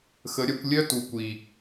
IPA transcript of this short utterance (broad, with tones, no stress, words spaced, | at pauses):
xə˨˦ɾʲœ˨˦kʷ lʲœ˥ tu˨˩ kʷi˨˩